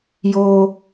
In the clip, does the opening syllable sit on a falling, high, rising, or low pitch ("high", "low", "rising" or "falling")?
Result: high